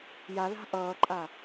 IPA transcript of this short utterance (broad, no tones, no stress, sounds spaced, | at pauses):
j a l a̤ ʔ ʌː ǃʼ a